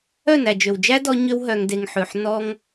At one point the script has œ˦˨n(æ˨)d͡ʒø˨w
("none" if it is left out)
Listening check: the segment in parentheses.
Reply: æ˨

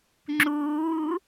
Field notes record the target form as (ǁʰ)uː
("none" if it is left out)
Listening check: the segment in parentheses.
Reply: ŋ͡ǁ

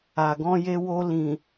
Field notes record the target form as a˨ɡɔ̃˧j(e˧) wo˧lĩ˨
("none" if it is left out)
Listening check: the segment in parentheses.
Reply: e˧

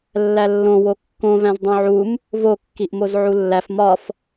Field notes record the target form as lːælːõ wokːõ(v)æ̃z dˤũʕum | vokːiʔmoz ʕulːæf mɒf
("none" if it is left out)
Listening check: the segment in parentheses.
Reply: v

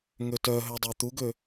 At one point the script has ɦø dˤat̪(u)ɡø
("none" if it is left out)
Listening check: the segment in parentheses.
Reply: u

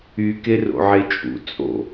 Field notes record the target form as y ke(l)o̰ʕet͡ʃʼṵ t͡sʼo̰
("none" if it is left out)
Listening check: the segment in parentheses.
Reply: r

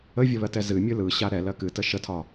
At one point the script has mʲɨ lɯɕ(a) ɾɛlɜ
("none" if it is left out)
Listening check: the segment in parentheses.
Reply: a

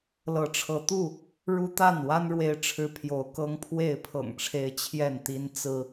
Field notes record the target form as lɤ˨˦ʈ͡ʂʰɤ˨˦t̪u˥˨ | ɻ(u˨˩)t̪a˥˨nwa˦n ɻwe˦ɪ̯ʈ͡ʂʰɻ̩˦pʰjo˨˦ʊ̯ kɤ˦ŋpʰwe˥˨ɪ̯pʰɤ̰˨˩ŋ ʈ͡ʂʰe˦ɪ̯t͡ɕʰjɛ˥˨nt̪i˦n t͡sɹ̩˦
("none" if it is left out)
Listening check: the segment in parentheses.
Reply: u˦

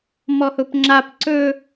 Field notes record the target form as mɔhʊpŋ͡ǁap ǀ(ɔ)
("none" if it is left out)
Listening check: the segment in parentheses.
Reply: ɵ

